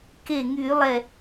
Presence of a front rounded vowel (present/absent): present